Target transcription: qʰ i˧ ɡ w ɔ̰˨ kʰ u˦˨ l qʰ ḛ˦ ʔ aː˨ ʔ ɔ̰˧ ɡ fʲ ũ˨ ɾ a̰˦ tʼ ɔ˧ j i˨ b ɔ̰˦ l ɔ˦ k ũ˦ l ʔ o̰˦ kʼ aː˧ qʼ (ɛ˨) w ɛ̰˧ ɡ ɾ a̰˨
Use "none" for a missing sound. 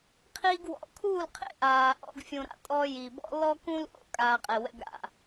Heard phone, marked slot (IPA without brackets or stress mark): ɛ˨